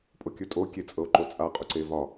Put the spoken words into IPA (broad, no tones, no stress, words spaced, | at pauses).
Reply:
pʼokʲɵtʼo kʲet͡sʼɤo̯ǃot͡sʼa qʼuǀevɒ